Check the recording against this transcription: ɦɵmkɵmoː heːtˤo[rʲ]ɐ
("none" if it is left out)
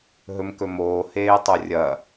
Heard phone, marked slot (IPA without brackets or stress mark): rʲ